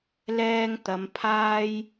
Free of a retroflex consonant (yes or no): yes